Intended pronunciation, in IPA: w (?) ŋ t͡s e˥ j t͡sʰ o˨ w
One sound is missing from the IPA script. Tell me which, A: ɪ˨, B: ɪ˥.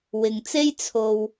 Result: A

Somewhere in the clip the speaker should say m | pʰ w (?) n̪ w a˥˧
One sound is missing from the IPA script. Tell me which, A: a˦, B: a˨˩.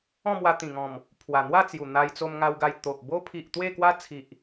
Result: B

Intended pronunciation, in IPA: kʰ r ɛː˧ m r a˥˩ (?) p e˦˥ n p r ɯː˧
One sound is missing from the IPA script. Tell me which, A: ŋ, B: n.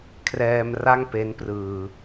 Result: A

